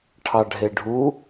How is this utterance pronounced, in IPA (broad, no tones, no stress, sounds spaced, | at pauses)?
ʈʰ ɑ ɖʱ e ɖʱ u